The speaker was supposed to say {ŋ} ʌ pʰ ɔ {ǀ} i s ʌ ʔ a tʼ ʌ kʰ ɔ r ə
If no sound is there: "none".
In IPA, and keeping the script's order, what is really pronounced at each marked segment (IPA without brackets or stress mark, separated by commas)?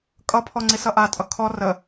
kʼ, ŋ͡ǀ